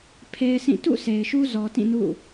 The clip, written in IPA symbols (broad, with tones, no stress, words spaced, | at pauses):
pʰe˦ɪ̯sĩ˦˨ tṵ˦˨ se˨ɪ̯ʃu˦ zɔ˨tĩ˦˨ nṵ˦˨